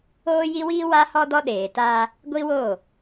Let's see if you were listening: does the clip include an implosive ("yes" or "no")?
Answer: yes